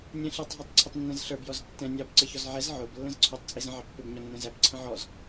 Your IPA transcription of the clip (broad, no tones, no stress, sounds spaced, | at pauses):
nʲ ɛ̃ ɬ i tˤ ɦ ə˞ tˤ ǀʰ ɪ tˤ nː ɛ̃ z ɬ ə˞ b j ɔ z tː ɛ̃ nʲ ɑ b ǀ ə ç ɔ z ʕ ɛ z ʕ ʊ b lː ə̃ z ǀʰ ʊ tˤ t͡sʼ i z ə̃ ʕ ɑ pː ɪ b ɲ ɔ nː ɛ̃ z æ b ǀʰ ə̃ ʕ ɔ z